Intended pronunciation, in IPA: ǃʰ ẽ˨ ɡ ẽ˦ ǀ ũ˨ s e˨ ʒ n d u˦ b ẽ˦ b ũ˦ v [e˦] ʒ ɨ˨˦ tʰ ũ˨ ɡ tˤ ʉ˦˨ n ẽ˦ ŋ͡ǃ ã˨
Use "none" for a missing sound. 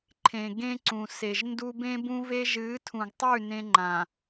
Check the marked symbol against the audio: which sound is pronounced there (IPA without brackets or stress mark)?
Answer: e˦